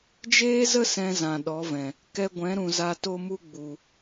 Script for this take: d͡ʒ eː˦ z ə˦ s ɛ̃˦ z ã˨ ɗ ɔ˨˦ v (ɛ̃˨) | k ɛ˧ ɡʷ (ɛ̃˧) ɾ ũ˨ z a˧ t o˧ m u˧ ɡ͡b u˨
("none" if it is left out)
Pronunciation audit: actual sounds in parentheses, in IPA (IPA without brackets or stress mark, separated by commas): ɛ̃˨, ɛ̃˨˦